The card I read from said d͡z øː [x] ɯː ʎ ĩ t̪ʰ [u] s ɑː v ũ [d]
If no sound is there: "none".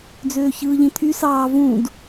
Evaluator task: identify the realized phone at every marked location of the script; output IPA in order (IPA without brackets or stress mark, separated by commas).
ç, y, d